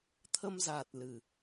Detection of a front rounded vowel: absent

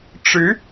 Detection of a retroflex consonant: present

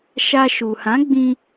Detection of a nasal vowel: present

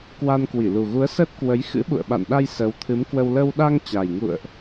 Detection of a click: absent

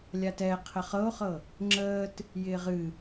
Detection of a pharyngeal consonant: absent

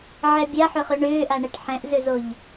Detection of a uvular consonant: present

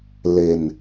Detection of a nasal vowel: absent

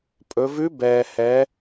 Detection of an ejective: present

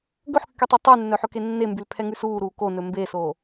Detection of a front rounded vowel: present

